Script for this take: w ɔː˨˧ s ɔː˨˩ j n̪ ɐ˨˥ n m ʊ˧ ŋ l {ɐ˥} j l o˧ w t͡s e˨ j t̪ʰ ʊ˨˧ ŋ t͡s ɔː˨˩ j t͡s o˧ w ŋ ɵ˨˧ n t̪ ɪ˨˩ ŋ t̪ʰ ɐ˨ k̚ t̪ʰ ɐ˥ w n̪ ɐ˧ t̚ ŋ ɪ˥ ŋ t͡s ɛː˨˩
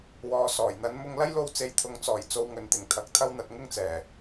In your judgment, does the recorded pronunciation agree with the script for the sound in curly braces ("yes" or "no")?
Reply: yes